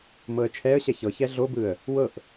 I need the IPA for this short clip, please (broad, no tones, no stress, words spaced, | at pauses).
mɤə̯t͡ʃʰɛə̯ɕɛ çɤçɛ ɮobɯə̯ | wɤʔ